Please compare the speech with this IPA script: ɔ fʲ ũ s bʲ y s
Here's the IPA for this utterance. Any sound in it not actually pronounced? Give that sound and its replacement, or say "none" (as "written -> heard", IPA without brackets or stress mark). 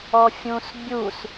y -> u